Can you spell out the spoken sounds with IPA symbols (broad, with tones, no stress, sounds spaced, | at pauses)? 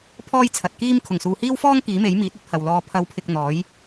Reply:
pʰ ɔː˥ j t͡sʰ ɐ˨ t̚ k iː˥ m kʰ ʊ˨˩ ŋ s uː˨ h iː˥ w f ɔː˥ ŋ k iː˨˥ m e˨˥ j m iː˨˥ t̚ ɵ˨˥ t̚ h ɐ˨ w l ɔː˧ pʰ ɐ˨˧ w pʰ ɪ˨ k̚ n̪ ɔː˨˥ j